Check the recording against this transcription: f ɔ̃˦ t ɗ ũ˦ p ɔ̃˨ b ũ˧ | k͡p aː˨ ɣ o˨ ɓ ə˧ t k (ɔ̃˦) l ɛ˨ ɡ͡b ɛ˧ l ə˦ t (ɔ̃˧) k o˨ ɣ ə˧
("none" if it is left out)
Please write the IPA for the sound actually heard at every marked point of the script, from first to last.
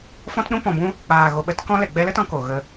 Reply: ɔ̃˦, ɔ̃˧

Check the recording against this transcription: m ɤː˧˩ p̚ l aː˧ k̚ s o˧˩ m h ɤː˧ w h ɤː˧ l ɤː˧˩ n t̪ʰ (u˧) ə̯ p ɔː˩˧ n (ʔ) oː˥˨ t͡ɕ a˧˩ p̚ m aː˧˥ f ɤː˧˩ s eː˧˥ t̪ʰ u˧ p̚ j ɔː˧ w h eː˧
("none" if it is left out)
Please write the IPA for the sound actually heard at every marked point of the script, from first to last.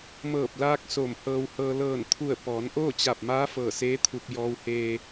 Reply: u˧˩, ʔ

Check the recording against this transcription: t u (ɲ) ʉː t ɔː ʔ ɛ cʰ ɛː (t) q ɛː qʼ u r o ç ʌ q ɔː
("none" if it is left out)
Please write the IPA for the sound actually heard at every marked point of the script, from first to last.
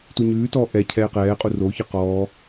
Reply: ɲ, none

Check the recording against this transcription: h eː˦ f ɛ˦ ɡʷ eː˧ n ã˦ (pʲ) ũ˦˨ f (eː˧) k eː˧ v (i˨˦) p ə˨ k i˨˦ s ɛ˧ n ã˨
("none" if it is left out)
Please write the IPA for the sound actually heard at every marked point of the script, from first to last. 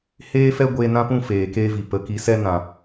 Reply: p, eː˨, i˨

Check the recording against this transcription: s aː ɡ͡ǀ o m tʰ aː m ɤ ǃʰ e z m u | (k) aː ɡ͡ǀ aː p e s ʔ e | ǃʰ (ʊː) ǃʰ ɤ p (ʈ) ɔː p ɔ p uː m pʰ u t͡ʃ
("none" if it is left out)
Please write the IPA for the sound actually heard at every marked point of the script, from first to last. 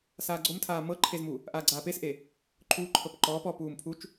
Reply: ʔ, uː, ǃ

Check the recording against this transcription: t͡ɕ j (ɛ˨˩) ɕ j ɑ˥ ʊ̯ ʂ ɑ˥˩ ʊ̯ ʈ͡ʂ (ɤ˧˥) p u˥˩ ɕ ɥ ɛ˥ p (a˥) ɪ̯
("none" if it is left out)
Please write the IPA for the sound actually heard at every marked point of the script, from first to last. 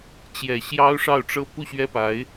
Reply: ɛ˨˩, ɤ˥, a˧˥

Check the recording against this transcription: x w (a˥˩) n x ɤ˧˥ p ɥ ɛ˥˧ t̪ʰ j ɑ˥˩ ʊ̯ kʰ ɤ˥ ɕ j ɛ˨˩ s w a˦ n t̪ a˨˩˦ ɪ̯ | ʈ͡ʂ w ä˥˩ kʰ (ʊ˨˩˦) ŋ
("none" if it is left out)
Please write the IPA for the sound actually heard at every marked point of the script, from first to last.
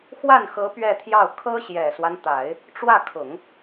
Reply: a˥˩, ʊ˨˩˦

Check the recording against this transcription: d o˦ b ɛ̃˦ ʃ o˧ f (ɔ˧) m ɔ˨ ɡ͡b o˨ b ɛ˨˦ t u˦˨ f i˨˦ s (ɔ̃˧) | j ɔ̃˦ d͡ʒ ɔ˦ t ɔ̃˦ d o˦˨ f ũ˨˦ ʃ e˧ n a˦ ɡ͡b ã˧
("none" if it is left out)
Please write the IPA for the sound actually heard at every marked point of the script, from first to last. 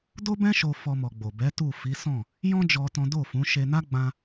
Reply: ɔ˧, ɔ̃˦˨

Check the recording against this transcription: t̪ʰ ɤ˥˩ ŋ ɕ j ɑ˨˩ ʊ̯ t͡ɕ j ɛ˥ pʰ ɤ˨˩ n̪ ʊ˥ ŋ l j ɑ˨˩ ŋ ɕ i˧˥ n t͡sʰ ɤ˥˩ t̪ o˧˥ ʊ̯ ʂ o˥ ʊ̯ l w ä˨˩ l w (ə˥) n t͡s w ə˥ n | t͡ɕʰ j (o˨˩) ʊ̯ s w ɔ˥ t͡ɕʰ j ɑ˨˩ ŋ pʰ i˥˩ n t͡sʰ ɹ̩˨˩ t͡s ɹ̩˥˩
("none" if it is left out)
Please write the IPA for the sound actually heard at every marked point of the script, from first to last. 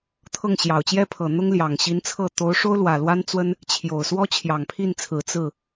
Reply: a˥, o˨˩

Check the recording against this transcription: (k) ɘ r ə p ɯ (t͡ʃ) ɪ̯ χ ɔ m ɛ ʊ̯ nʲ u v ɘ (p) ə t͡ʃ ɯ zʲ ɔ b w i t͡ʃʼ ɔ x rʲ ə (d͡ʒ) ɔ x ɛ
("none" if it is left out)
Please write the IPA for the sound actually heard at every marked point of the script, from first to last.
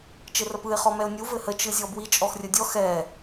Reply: t͡ʃ, none, h, dʲ

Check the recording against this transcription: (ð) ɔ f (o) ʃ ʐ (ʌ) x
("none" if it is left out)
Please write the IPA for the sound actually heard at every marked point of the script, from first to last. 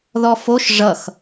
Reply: ð, o, ʌ

